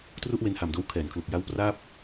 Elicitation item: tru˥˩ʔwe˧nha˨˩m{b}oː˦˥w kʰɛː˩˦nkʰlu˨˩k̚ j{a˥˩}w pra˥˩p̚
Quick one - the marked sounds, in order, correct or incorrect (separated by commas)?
incorrect, incorrect